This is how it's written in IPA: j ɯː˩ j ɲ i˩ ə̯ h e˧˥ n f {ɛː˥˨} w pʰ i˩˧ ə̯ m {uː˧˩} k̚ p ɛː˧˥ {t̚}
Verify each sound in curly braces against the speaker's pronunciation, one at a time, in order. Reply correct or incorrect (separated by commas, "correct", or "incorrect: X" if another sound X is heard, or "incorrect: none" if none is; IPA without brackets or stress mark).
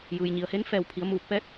incorrect: ɛː˧˩, correct, correct